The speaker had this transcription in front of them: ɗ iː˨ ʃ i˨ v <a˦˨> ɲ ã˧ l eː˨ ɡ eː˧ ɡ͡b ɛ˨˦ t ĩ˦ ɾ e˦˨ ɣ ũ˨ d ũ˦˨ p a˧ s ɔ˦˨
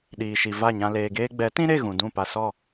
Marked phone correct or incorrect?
correct